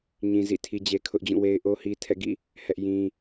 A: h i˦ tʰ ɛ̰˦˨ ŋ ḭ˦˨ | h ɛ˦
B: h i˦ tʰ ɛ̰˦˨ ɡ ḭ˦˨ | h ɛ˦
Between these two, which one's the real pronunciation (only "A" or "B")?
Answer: B